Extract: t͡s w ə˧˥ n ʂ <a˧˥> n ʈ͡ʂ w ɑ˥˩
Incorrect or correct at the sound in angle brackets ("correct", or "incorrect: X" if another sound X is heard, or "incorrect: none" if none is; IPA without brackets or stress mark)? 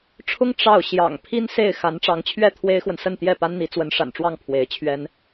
incorrect: a̰˨˩